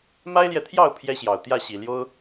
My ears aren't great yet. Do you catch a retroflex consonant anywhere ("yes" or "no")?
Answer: no